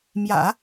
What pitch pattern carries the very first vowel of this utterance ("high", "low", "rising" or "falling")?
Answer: low